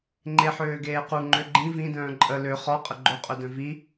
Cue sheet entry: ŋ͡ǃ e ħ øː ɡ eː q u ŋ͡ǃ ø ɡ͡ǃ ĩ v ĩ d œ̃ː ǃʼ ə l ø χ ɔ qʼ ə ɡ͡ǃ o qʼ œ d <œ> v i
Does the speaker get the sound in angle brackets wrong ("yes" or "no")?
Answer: yes